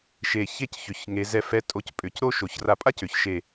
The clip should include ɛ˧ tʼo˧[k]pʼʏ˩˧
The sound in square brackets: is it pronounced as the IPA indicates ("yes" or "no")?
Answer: no